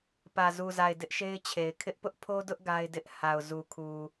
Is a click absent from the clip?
yes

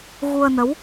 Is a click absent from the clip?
yes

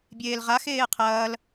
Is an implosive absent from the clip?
yes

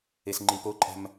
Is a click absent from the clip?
no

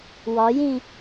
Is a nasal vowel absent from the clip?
no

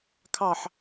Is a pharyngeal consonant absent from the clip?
no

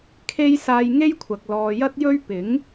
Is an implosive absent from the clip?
yes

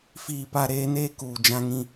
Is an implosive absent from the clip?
yes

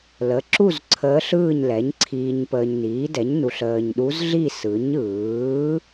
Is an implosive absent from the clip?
no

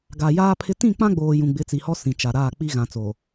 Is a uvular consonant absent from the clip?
yes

